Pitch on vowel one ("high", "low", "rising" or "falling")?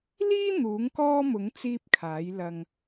high